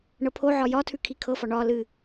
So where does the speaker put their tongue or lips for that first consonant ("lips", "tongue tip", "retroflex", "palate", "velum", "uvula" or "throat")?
retroflex